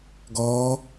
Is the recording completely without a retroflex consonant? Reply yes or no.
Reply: yes